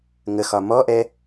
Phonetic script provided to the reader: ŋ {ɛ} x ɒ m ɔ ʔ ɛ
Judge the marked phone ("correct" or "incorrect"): incorrect